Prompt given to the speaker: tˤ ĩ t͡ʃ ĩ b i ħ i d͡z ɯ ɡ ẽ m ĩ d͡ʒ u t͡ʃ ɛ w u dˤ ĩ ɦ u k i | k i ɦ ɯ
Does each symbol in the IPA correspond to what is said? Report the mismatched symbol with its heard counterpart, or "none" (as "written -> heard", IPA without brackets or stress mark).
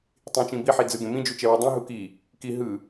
none